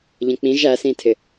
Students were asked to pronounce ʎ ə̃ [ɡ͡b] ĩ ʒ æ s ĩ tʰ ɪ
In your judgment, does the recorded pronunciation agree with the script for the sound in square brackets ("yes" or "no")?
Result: no